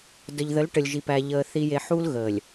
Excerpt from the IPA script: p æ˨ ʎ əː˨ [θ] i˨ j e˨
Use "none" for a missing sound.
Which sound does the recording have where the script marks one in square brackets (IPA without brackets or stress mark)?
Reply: θ